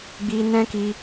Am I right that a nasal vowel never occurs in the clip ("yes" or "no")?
no